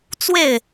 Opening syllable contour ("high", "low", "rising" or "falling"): falling